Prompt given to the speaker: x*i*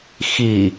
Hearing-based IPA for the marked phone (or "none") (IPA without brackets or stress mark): i